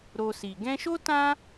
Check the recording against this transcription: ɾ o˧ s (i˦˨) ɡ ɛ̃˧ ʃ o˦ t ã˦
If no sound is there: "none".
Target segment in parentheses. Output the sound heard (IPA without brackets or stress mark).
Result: i˨